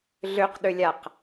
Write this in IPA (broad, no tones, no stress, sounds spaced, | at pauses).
ɮ ø q ɗ ø lʲ a q